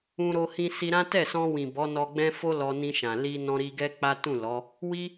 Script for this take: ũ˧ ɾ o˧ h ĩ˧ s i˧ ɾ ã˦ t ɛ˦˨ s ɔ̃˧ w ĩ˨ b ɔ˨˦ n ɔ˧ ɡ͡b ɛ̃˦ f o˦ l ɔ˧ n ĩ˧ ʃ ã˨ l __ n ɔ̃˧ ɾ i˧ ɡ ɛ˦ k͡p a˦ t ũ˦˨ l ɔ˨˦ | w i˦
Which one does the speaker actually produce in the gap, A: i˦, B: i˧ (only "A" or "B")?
B